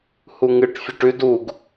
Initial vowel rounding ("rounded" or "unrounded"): rounded